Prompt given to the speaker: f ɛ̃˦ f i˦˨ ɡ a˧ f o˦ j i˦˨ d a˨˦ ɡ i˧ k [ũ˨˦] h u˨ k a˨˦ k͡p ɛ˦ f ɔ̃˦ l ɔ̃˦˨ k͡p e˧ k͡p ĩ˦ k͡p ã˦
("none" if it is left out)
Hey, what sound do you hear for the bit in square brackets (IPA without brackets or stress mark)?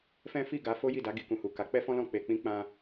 ũ˨